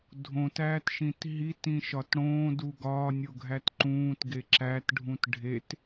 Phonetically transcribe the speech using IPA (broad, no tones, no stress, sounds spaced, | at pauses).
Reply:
dʱ õ t æː t ʃ ĩ t ɦ i t ĩ ʃ ɒ t ɽ õː d u ɡ ɒː nʲ o ɡʱ æ t ǃ ũː t ɡ e ǁ æ t ɖʱ ũ t ɖʱ e t